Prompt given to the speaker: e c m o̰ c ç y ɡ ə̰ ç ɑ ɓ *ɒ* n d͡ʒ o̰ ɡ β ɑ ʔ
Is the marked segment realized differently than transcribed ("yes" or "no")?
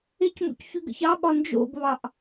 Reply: no